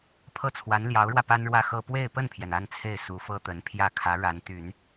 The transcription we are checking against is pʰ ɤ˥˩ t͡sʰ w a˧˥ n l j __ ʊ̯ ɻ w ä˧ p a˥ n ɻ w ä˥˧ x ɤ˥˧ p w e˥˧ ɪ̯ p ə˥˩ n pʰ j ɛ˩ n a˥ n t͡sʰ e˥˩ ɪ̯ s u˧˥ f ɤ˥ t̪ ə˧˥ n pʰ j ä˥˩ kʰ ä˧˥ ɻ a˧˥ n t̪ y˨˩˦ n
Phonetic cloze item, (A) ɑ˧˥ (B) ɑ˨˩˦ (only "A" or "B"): A